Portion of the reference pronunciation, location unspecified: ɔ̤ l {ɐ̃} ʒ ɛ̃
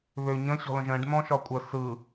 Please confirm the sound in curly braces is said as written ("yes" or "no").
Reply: no